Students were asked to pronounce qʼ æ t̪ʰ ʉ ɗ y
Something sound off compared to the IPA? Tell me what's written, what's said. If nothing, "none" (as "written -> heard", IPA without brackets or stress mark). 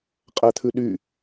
none